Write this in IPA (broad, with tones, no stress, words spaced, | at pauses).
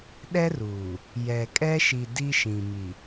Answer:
ɗɛ˦ruː˨ | jɛ˨kʼɛ˦ʃi˨ di˦ʃĩ˨ mi˨